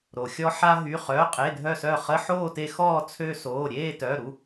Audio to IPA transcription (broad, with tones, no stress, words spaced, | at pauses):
ɾo˩xʲɔ˧ ħa˧ɦy˩˧˩ χœ˩˧˩qʼe˩˧˩dʱœ˧˩sœ˧˩ χə˧˥˧ħoː˥˨te˧xɔː˥˨ t͡sʰø˧soː˩˧˩ ɾʲeː˥˨tœ˩˧˩ɾu˩˧˩